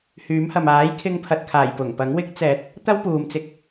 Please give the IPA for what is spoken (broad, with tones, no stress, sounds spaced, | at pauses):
h yː˨˥ m h ɐ˨ m aː˨˥ j kʰ ɪ˧ ŋ pʰ ɐ˨ t̚ kʰ aː˨˩ j p ʊ˨˩ ŋ p ɐ˨˥ ŋ w ɪ˧ k̚ t͡s ɛː˨˥ t̚ | t̪ ɐ˥ w p uː˨ m t͡s ɪ˧ k̚